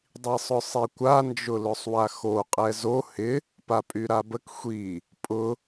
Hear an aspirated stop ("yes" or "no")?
no